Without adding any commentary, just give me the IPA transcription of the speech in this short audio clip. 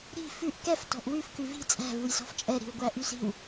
ɾ i̤ f ʉ ʔ k ɛ f t ɔ̤ ʔ w ʉ f k ʉ v i̤ t͡sʼ æ̤ v u j s ɔ̤ f t͡ʃʼ ɛ ɾ i̤ w ɡʷ æ ʔ y s i̤ w

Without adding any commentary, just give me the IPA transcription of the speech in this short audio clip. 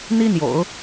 n̪ i˥ n̪ j o̰˨˩˦ ʊ̯

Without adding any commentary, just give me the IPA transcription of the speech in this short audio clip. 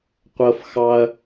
qʷ ɤ˥ f x ɑ˥ ɐ̯

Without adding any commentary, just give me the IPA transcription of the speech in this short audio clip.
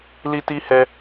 l i˧ t i˧ h ɛ˧

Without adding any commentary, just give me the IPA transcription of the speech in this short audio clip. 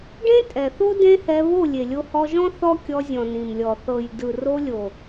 ɖ ẽ˦ tʼ ɛ˨ θ o˦ d ẽ˦ h ɛ˧ β o˦˨ lʲ e˨ lʲ o˧ h ɔ˧ ʒ ɔ̃˦ θ ɔ˦ kʲ ɔ˧ zʲ ɔ̃˨ n ĩ˨ m lʲ ɔ˨ θ ɤ˨ j d ɯ˨ r o˧ lʲ o˨

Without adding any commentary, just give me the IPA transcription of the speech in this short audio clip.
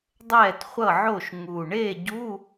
dˤ ɛː˥˩ t χʷ ʌ˥˩ ʕ o˥˩ ʃ ŋ u˨˩ ɳ eː˥˩ ɟ u˧˥˧

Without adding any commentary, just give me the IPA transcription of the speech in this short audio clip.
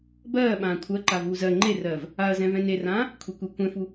b ɜː ɓ ãː kʷʰ ɜ ǃ a v uː z ɜ ŋ͡ǃ e r ɜː v | a ɐ̯ z ɛ̃ v ɛ̃ n e r ãː | kʷʰ e kʷ e kʷ ɛ̃ f u

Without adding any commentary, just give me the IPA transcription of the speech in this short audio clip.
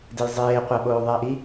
d e j zˤ eː qʷ ɐ ɓ oː ðˤ ɛ ɪ̯ ʔ i

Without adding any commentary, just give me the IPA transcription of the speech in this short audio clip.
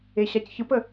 e ɕ a c ç ɯ p ə

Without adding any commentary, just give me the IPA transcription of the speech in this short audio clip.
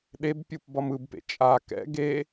ɗ e b pʲ u p b ʌ m ɯ b p ḛ t͡ʃʼ a k ɛ̰ ɡ e

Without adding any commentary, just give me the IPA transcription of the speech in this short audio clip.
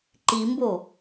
ǃ i m b o

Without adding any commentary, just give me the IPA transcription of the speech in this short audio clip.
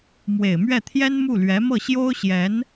m w e˨˩ ɪ̯ m ɥ ɛ˥˩ t̪ʰ j ɛ˥ n m u˥˩ l ɥ ɛ˧˥ m ɤ˥˩ ɕ j o˥ ʊ̯ ɕ j ɛ˧˥ n

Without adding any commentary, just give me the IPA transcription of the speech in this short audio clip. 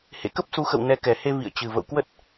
h ḛ˧˨ k ə˦˥ p̚ s u˨˦ x ə̰˧˨ w n ɛ˨˦ k ɛ˨˩ h e˧ v ḭ˧˨ ə̯ t͡ɕ ɨ˨˩ v ə̰˧˨ w k w ə˦˥ t̚

